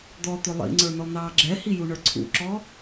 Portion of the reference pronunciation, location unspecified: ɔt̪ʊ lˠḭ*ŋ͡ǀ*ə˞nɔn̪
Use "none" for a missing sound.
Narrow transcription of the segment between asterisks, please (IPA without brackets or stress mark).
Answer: ŋ͡ǀ